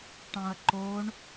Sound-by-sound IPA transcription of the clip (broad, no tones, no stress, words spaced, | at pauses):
ʈɑ̃ɐ̯ǃoɳ